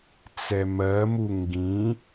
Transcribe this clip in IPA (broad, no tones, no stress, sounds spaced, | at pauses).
t͡s ɛ m ɜ m u ŋ ɡ ĩ